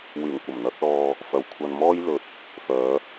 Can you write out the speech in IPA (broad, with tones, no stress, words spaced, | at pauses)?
wyː˨˩ŋkʷɐ˨˩mn̪ɐ˨˥k̚lɔː˧ | fɐ˨wkʷʰɐ˧nmɔː˥j lɵ˨˥t̚ | fœː˨˧